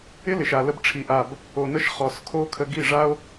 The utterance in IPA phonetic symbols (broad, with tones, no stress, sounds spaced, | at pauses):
ɪ˦ l ɪ˨ ʃ a˨ l ə˧ b ʈ͡ʂʰ i˨ ʔ a˨ b | o˨ n ə˧ ʃ χ ɔ˨ s kʰ o˧ kʰ ə˧ ɡ i˦˨ ʐ a˦ o̯